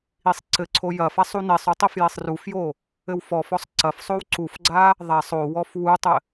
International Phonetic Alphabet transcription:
isˤǀɘǀʰo jɐfasˤ unesˤu tˤifjesˤrufjo | ɘwfɔfɔsˤ ǀɐfsˤow ǀufɡ͡ǀa | ðˤasˤ owɔf wutˤɘ

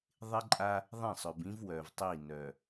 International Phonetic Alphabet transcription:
ðˤɪ˦ǃʼa˦ | ðˤẽ˦˨sˤœ˨bĩ˦v wœ˨vtˤi˦˨ nœ˨

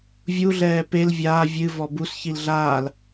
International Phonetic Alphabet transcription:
vʲuɮɛː pel vʲaː vʲɨ vɔbus çilɮaːl

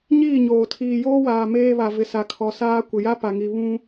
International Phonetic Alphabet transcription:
ɲiː˦˨ɲoː˨ tʰiː˨joː˦waː˨ meː˦βa˨ vɪ˨sa˨kʰɔ˨saː˦ kʷɪ˨ja˦ pa˨ŋi˨ βũ˦

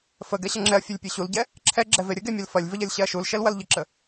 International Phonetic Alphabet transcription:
fəɡɛɕɐ ŋ͡ǁɛɐ̯fʲɛlʲpʲe ɕulɟɛ | ǁʰɛɡ͡ǁɛve ɾʲəɡemʲɐl fɐlʲvəʎɐlʲɕɛɐ̯ ʃulʃɛlwɐl ʎəǁə

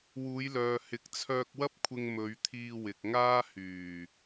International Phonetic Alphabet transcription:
wuː˨˧jlœː˨ hɪ˨˥k̚t͡sʰœː˧k̚wɐ˥p̚kʷʰɪ˧ŋ mɵ˨˧ɥt̪ʰiː˧wɪ˨k̚ŋaː˥ hyː˨˩

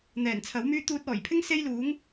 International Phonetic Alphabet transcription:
n̪ɛː˨˩nt͡sʰɐ˨˥wmyː˥ t̪uː˧t̚ɔː˨˩jpʰɪ˥ŋ se˥jluː˨˥ŋ

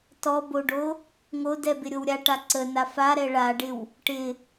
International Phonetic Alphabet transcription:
tɔboɖo | ŋodɛbɪɾʲow ɾʲaʈa ǀəna faɾɛ ɭaɖɪw | ʈɪ

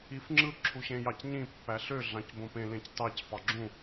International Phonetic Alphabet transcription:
ifŋ͡ǁɯ ǁʰuɕẽjɑcɲĩ pːæɬø ɮɑ̃cbõpẽ lẽctɑc fɑɡ͡ǁũ

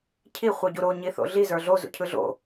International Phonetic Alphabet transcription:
cʰi χʷɯɟuɾo ɲiθo̰ɮi zə˞ɮo zṵcʰɯɮo̰

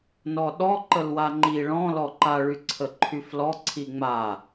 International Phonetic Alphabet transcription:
nɔɗɔ ǃəlwaŋ͡ǃi ɭɔ̃ lɔǃa ɭyǀʰəǃʰyflɔ ǀʰiŋ͡ma

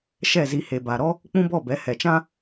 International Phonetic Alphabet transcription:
ʃɛ˦˨zi˧he˨ba˨ ɾɔ˦ | k͡pũ˦bɔ˦˨bɛ˨˦ hɛ˨t͡ʃã˦

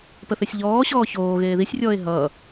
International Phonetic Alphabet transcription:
pəθesʲʎɔːɕɔː çoː ɣeːðisʲrʲɔːe̯ ɦʌː

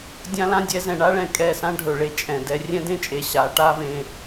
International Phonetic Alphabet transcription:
dʲã˦lã˦ dʲɛ˨˦zɛ̃˨ɳa˦ɭɛ̃˨ kʼɛ˦˨sã˦ ɖʱɵ˨ɭe˦ t͡ʃʼɛ̃˨ dɛ˦ rʲɛ̃˦dẽ˦t͡ʃʼe˨ ɕa˨˦ ʈa˦vẽ˦

